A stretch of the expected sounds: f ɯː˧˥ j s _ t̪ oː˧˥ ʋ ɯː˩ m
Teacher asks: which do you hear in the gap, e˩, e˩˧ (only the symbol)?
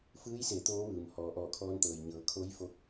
e˩˧